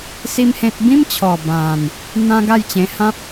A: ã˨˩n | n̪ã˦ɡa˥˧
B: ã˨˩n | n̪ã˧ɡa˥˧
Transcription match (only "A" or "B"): A